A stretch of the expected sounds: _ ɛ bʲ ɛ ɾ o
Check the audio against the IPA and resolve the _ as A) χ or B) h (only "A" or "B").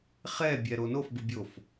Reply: A